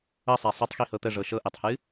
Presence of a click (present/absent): absent